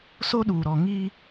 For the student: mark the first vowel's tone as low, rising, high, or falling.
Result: high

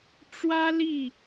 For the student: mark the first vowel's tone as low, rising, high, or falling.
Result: high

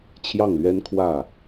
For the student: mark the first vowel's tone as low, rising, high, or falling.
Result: falling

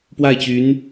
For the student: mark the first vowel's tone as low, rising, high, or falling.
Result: falling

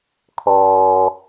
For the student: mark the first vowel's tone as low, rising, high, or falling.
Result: low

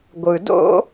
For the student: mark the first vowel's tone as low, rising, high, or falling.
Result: low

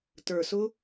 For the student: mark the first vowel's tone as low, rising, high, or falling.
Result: low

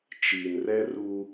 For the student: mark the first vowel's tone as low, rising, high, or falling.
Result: low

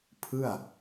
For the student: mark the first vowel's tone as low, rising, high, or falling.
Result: falling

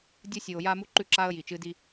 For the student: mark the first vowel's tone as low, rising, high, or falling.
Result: high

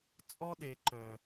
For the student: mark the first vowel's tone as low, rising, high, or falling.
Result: high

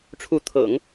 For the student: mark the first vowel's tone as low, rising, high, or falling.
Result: rising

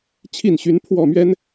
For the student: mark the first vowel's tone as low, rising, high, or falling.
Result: falling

